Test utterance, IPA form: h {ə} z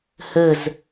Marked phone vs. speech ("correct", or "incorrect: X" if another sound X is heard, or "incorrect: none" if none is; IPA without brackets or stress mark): correct